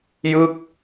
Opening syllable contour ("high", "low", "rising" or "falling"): falling